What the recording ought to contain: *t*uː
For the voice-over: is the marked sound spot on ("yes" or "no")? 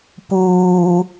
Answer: no